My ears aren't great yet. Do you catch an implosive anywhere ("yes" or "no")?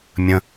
no